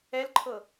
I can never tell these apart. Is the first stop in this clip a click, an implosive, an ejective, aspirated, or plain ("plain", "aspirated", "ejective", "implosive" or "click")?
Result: click